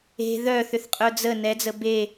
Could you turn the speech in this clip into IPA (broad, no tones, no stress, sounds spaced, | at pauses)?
e̤ ð œ θ ʏ θ qʼ œ d͡z ə n ɛ d͡z ə b e